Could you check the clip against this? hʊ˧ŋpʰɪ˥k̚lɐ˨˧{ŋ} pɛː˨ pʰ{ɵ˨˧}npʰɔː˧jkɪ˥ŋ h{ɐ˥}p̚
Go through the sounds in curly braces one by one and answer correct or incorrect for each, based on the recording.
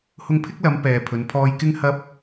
incorrect: m, correct, correct

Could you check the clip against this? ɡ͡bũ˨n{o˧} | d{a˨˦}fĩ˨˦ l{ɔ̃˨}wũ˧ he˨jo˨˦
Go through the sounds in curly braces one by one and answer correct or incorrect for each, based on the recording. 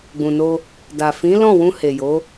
correct, incorrect: a˨, incorrect: ɔ̃˦˨

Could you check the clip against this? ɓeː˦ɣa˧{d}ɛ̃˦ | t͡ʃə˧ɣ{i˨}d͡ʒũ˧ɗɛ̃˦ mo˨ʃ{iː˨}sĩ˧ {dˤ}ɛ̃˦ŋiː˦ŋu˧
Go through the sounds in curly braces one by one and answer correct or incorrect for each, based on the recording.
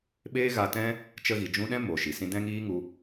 incorrect: t, correct, incorrect: i˨, incorrect: d

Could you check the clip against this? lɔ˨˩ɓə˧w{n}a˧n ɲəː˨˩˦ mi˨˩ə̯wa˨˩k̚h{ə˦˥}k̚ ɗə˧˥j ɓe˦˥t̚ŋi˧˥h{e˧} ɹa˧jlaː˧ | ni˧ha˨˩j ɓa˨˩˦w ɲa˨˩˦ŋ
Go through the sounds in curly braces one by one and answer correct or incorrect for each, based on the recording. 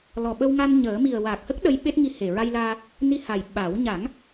incorrect: ŋ, correct, incorrect: e˨˩

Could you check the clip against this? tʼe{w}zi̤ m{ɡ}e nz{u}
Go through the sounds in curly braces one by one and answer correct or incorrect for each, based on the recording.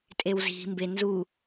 correct, incorrect: b, correct

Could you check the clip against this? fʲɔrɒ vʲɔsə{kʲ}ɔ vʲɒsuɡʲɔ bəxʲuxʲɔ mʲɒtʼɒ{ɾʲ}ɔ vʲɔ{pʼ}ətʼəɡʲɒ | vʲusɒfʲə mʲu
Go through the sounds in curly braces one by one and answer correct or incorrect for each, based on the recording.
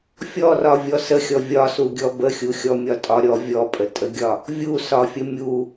incorrect: xʲ, correct, correct

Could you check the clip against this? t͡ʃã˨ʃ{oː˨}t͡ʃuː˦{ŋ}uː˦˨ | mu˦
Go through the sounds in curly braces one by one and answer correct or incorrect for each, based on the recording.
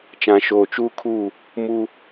correct, incorrect: kʰ

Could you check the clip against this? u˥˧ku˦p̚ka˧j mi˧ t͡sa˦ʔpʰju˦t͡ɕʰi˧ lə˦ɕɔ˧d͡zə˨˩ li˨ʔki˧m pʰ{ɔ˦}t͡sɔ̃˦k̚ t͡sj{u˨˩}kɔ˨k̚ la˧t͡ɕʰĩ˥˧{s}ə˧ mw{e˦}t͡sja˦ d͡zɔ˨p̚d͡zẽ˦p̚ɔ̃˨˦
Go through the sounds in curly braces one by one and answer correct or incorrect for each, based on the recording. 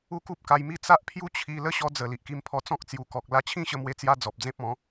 incorrect: ɔ˧, correct, incorrect: ɕ, correct

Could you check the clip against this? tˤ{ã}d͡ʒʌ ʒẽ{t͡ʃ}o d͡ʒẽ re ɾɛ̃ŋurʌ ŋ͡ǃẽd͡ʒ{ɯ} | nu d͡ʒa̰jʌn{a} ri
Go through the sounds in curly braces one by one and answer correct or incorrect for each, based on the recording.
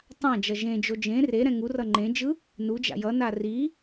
correct, incorrect: d͡ʒ, correct, correct

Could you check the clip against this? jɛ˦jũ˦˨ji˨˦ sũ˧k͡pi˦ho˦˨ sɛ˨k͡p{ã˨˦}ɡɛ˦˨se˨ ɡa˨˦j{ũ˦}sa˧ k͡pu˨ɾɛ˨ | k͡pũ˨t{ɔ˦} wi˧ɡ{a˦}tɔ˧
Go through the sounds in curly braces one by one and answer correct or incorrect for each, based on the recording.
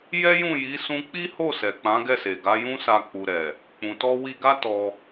correct, correct, incorrect: ɔ˧, correct

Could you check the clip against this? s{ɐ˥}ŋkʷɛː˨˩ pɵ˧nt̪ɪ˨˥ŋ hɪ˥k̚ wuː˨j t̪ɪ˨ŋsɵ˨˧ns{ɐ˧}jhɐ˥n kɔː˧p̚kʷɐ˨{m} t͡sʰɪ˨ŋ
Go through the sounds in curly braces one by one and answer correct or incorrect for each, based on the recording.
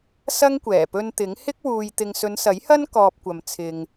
correct, incorrect: ɐ˨˥, correct

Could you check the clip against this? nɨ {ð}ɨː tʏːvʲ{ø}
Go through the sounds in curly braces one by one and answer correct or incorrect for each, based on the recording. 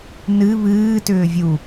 incorrect: β, incorrect: u

